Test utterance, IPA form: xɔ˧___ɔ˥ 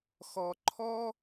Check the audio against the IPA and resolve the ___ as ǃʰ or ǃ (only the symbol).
ǃʰ